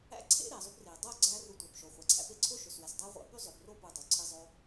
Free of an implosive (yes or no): yes